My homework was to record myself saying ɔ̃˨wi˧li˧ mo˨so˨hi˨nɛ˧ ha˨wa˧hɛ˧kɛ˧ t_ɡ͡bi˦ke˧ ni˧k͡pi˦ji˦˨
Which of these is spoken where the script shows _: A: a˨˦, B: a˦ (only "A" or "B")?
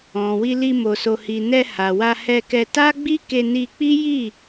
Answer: B